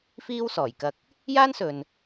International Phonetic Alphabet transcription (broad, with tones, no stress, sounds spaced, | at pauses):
f iː˥ w s ɔː˨˩ j k ɐ˧ k̚ | j aː˥ n s ɵ˨ n